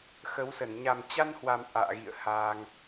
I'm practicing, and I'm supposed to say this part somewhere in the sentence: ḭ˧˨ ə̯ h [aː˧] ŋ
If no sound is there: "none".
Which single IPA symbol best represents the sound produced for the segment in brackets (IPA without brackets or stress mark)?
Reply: aː˧